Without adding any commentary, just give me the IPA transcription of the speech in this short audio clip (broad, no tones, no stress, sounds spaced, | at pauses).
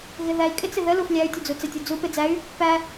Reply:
ɣ ɪ ð æ i̯ kʼ ɪ t͡s ɪ ð ə l u f lʲ æ y̯ tʲ u d͡z u t͡s ɪ tʲ u d͡z u p ɪ d͡z æ y̯ | p æ